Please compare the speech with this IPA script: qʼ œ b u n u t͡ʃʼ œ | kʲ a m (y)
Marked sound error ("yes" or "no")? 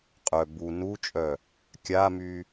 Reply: no